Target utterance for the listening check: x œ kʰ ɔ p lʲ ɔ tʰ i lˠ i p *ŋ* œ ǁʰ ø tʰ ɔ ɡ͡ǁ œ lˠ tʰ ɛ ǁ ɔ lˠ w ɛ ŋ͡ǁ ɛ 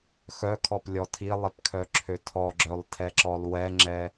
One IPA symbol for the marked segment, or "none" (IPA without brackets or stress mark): kʰ